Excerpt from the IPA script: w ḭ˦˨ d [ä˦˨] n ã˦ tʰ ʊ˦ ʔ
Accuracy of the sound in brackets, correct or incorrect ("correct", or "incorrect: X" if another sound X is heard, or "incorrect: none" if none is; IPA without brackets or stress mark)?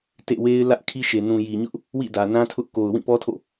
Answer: incorrect: ä˨